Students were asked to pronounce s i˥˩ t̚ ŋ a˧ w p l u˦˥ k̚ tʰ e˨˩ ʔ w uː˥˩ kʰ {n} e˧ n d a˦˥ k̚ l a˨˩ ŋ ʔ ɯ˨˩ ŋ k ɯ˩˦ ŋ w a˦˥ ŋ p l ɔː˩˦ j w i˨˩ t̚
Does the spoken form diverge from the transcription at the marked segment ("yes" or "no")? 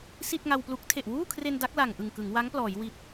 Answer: yes